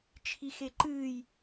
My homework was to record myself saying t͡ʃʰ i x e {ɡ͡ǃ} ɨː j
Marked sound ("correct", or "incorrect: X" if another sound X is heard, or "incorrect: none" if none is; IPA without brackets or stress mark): incorrect: ǃ